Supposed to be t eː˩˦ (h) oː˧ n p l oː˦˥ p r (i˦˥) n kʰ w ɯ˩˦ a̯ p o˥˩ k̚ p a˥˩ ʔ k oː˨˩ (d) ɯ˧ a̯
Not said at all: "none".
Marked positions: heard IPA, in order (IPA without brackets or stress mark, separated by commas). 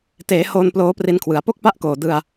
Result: h, i˧, d